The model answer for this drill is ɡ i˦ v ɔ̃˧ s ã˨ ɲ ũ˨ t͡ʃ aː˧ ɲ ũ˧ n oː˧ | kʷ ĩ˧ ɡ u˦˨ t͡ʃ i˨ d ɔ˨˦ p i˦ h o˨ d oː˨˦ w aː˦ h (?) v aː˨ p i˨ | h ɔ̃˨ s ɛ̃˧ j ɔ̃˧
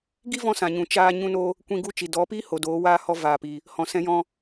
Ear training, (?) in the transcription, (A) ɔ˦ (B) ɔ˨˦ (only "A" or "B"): A